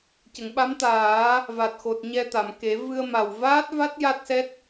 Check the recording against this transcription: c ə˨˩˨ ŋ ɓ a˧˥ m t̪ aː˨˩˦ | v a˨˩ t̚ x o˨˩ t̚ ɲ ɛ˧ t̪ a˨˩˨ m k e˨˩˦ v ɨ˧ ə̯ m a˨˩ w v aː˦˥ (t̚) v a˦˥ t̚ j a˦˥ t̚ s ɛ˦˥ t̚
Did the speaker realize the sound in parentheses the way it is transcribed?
yes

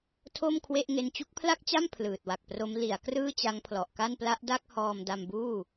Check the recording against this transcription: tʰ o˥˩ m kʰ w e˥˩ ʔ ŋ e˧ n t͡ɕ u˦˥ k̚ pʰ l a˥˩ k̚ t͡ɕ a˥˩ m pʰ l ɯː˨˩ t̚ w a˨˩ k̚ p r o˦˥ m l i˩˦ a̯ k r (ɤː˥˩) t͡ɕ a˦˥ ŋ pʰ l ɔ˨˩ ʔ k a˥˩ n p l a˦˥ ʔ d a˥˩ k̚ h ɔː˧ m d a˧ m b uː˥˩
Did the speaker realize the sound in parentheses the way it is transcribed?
no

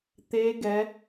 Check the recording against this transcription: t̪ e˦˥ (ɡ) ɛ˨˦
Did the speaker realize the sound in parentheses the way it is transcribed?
yes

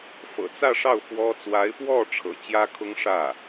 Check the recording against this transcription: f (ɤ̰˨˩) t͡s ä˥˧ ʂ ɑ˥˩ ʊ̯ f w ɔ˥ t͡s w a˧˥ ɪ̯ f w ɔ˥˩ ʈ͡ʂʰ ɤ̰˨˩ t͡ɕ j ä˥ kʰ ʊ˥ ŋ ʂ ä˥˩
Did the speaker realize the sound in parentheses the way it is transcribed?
yes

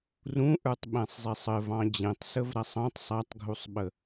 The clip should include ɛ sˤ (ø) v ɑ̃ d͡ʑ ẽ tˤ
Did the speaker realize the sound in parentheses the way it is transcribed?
no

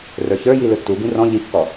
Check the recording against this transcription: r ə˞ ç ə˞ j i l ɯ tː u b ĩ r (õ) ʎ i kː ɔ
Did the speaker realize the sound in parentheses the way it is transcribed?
no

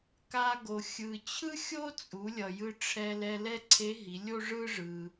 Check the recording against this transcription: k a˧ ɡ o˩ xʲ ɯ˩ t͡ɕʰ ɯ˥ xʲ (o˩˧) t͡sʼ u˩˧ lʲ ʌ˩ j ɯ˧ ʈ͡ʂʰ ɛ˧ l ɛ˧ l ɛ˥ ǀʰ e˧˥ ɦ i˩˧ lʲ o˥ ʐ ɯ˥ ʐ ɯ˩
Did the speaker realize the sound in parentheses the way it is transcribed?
no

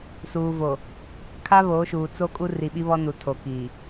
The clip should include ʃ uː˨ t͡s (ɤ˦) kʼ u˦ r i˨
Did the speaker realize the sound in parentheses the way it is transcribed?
no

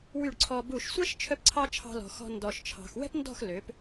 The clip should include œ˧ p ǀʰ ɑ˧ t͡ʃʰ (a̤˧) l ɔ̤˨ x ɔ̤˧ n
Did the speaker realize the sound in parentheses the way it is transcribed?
no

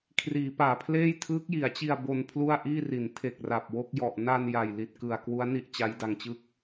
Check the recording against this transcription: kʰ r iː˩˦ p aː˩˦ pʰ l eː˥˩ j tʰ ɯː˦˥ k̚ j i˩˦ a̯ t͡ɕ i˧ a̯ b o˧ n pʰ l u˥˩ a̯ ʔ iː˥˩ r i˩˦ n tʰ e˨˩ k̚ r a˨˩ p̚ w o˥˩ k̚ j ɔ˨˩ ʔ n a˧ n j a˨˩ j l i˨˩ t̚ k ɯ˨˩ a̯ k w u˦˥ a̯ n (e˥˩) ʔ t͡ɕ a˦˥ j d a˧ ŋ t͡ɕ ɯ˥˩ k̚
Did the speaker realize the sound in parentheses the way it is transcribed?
no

